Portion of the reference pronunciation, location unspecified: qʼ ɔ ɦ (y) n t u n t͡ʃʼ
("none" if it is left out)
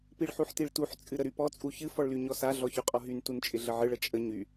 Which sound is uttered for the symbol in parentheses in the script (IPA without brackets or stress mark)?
y